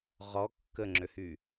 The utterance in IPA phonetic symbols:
ʁ ɔ kː ə ŋ͡ǁ ø h y

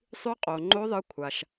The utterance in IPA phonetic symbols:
sˤ ʉ˧˥ qʼ o˩ ŋ͡ǃ o˧˥ ðˤ ɨ˧˥ kʷʰ a˩ ʃ

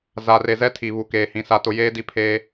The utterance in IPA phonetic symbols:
z a˨ r e˨ z ɛ˦ tʰ i˨ β u˨ k eː˨ h ĩ˨ s a˨ t ʊ˨ j eː˦ d i˦ pʰ eː˦

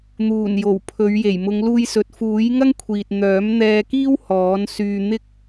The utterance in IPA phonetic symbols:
n̪ uː˨˩ n j o˨˩ w pʰ ɵ˨˧ ɥ j e˨˩ j m ʊ˨˧ ŋ l uː˧ j s ɵ˨ t̚ f uː˨˥ j ŋ ɐ˥ ŋ kʷʰ iː˨ t̚ n̪ œː˨˥ m n̪ ɛː˧ k iː˥ w h ɔː˨˥ n s yː˧ n̪ ɪ˥ k̚

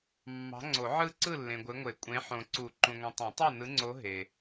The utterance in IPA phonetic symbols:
mː ɑ̤˨˦ ŋ͡ǀ o˨˩˦ ʕ ɯ˥˨ ǀ ɯ˥˨ lː ẽ˨ ɡʷ e˨˦ ŋʷ e˨˩˦ kʷʼ ẽ˨˦ ħ õ˨ ǀ u˨˩˦ ǃ ũ˨ ŋʷ ĩ˨ tˤ ẽ˨˩˦ tˤ ɑ˥˨ n ɯ˨˦ ŋ͡ǀ o˨˦ ɦ e˨

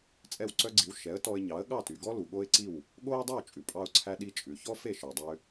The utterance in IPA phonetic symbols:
t͡sʼ ɛ˥˩ w ǀ œ˥ ɡ͡ǀ i˩˥ w ʃ ɛ˩˥ ə̯ t ɔ˧ ɪ̯ ɲ ɑ˩˥ ə̯ ɠ ɑ˥˩ t y˩ ɡ ɔ˥ l u˩ ɠ o˥ ɪ̯ ǀ i˥˩ w | ɠ o˥ ə̯ dˤ y˥˩ w t͡ʃʼ ʉ˩ pʼ ɑ˧ ʊ̯ ǀʰ æ˧ ɗ i˧ t͡ʃʼ ʉ˩ ç ɔ˥ f e˥˩ ʃ œ˩ dˤ ø˧

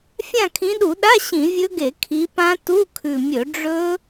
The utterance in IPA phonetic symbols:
fʲ ã˦˨ kʰ ĩ˨˦ ɗ u˧˩˧ ɗ a˧˥˧ ɕ ĩ˧˩˧ vʲ ɵ˦˥ ɡ e˧˩˧ kʰ i˨˦ p ã˦˥ t u˧˥˧ kʰ ʉ˨˩ mʲ ɵ˧˩˧ ɖ͡ʐ ɵ˦˥

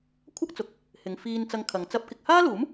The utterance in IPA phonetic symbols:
kʷʰ ɐ˥ k̚ t͡s ʊ˨˥ k̚ | h ɪ˨˧ ŋ f iː˧ n t͡s ɐ˧ ŋ kʰ ɐ˨˧ ŋ t͡s ɐ˥ p̚ k ɪ˧ k̚ h aː˥ l uː˨˥ m

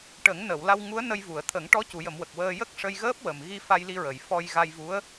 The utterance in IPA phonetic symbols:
ʈ ə˨˩˦ ŋ n ə˨˩˨ w l a˧ w ŋ u˧˥ ə̯ n ə˧ j v u˨˩˨ ə̯ t̪ʰ ə˨˩˦ ŋ ʈ ɔ˧˥ c u˨˩˨ j ə˨˩˨ m w ə˨˩ k̚ w əː˧ j ə˦˥ k̚ ʂ ə˧ j ɣ əː˦˥ p̚ w ə˨˩ m ɣ i˧ f a˧ j l i˧ ɹ ə˨˩˨ j f ɔ˧ j ɣ a˧ j v u˧˥ ə̯

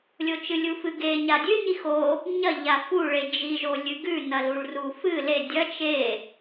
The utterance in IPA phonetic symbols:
lʲ o t͡ʃ ɨ lʲ u f ɨ ɡ e ɲ a dʲ ʉ ɲ i x o | ɲ ɐ ʎ a f u ɭ e d͡ʒ i ʒ o lʲ ɨ ɡ ʉ n ɐ l u ɭ r u f ɨ l e dʲ ɐ t͡ʃ e

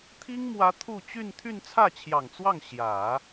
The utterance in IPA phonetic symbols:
t̪ʰ i˥ ŋ m w ä˧˥ t̪ʰ u˥˧ t͡ɕ y˥˧ n t̪ʰ y˥˧ n t͡sʰ ä˥˩ t͡ɕʰ j ɑ˨˩ ŋ t͡s w ɑ˥˩ ŋ ɕ j ä˨˩˦

